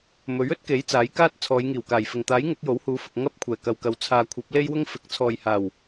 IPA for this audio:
m ɵ˨˥ ɥ ɵ˥ t̚ k e˨˥ j t͡s aː˨˥ j k aː˥ t̚ t͡sʰ ɔː˨˧ j ŋ iː˨˩ w k aː˨˩ j f ɪ˨˩ ŋ t̪ aː˨˥ j ŋ ʊ˨˥ k̚ j o˨˥ w h uː˨˥ f ʊ˨ k̚ ŋ ɐ˥ p̚ kʷʰ ɛː˨˩ k ɐ˨ w k ɐ˨ w t͡sʰ aː˨ kʷʰ ɐ˨˥ p̚ l e˥ j w ʊ˥ ŋ f ɪ˨˥ k̚ t͡sʰ ɔː˨ j h aː˨˩ w

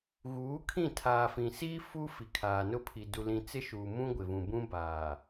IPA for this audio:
ɣ uː˨˦ kʰ ĩ˦˨ tʰ aː˨ f ĩ˨ s iː˦ f u˦ f i˨ kʰ aː˨ n ʊ˦˨ pʰ i˨ d u˨ l ĩ˨ t͡s ɪ˦ ʃ uː˨ m ũ˦ ɡʷ ɪ˨ v ũ˨ b ũ˦ b aː˨

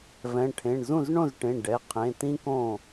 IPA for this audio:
v ɛ̃˩˧˩ ʈʰ ẽ˩˧˩ ɳ z ũ˥˩ z ɳ õ˥˩ z ʈ ẽ˩˧˩ ɖ ɛ˩˧˩ qʰ ẽ˩˧˩ t ĩ˥ k õ˥˩

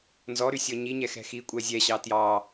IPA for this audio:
n z ɔ ɾ y sʲ ɔ ɲ i ɲ ɛ x ɛ̤ x i kʷʼ ɛ zʲ ɛ ɕ ɑ t j ɑ

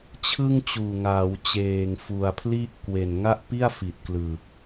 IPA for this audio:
t͡ɕʰ ɯ˥˩ ŋ t͡ɕ uː˨˩ ŋ aː˩˦ w t͡ɕ eː˨˩ ŋ f u˨˩ a̯ pʰ l i˥˩ ʔ k w e˨˩ n ŋ a˥˩ ʔ p i˥˩ a̯ f i˨˩ t̚ k l ɯ˨˩ k̚

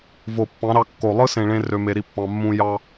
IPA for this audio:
v o˨ pː ɑ̃˨˦ ɾ ɑ˧ kː o˨ lˠ ɯ˦ s ẽ˨ ɭ ẽ˧ r ø˧ m e˧ ɾ i˦ pː ɑ̃˧ mː ũ˦ j ɑ˦

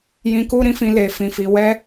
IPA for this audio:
j ĩ˧ k u˦ ɾ ĩ˦ f ĩ˧ l e˨ f ĩ˨ f i˨ w ɛ˧

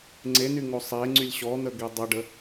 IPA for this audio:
ŋ͡ǀ e n y ŋ o sˤ e ŋ͡ǀ y lʲ ɕ ɔ n̪ ə ɡ e dˤ ə ɖ ə

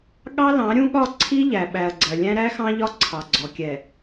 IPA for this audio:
ɠ ɑ˦ l ɑ̃˨˦ ɾʲ ũ˦ ɠ ɒ˦˨ ǀʰ i˦ ʎ æ˨ ɓ æ˨ ɐ̯ ɡ͡ǀ ɜ˨ lʲ æ̃˦ ɾ æ˦ x ɑ̃˦ ʎ ɒ˦˨ ǀʰ ɑ˨ ɡ͡ǀ ɔ˨ kʲ ɛ˨

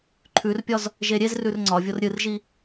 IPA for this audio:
ǃʰ ʉ r pʲ ɒ z | ʒ e ɾʲ e z r ʉ r ŋ͡ǀ ɒ vʲ o r ɾʲ ɨ r ʒ i

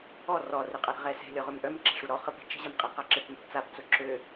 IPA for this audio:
ɔ r ɔ r ɪ qʼ a ɾ ə̤ ʁ ɛ s ɛ̤ lʲ ɔ ʁ ø m ʔ œ m ǁ ɛ̤ ʂ u ɾ ɔ χ ə p ɛ̤ t͡ʃ ə̤ ʑ a m qʼ ɛ q a ǁ ɪ p m ɛ̤ p t͡s a p t͡s ʊ ǁ ø

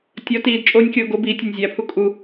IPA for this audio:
tʲ ɒ t iː d t͡ʃʼ oː nʲ kʲ oː ɡ o b iː tʲ e nʲ zʲ æ pʰ u kʼ u

